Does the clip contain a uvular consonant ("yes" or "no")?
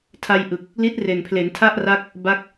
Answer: no